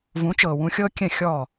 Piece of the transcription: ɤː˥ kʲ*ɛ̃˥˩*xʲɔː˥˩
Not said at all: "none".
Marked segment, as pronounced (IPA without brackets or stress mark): ɛ̃˥˩